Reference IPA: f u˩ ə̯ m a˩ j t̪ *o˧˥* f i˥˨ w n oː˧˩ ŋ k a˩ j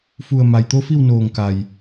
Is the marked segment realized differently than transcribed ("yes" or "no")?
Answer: no